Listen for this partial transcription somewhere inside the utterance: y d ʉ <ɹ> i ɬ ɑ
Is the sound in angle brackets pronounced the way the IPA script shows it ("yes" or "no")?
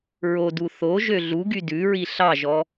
yes